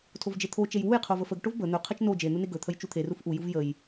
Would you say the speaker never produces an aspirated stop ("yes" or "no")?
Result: no